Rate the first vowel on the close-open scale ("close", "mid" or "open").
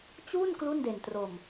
close